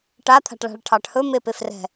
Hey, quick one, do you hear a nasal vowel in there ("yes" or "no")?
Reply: no